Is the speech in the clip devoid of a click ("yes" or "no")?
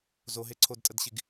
no